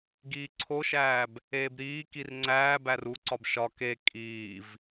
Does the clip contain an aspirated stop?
yes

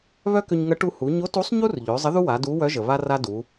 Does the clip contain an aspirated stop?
no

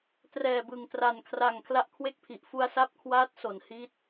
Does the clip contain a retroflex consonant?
no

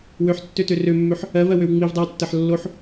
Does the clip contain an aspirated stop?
no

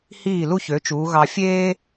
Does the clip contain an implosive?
no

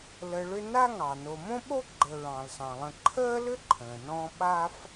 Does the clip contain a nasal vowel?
yes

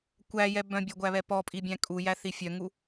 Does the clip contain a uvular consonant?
no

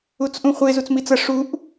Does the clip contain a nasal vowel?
yes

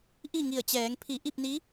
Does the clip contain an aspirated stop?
yes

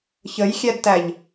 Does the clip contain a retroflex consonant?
no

